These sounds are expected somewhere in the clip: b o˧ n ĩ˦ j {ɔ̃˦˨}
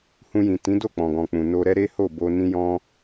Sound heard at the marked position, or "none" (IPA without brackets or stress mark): ɔ̃˦